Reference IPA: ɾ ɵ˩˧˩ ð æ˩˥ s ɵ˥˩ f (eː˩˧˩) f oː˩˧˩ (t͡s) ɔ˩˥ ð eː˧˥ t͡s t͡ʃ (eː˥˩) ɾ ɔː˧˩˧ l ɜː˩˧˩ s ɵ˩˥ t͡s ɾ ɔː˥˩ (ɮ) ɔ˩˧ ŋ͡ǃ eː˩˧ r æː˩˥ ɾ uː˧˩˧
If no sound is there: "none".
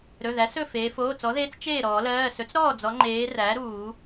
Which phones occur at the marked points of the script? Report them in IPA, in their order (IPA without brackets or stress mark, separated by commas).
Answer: eː˩˧, t͡s, eː˥˩, d͡z